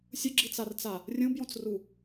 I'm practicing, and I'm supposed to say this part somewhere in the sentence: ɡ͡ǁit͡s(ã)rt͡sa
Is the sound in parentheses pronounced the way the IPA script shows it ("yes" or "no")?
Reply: no